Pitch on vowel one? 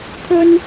high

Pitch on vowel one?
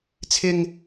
high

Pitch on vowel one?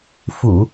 low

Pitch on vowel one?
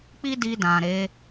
high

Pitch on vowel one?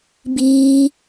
high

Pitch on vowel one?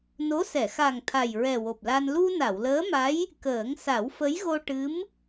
rising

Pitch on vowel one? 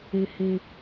high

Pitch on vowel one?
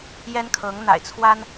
high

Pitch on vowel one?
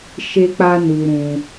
high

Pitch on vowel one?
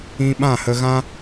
high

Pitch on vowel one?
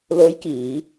rising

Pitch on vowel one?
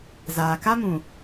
low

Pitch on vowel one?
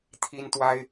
high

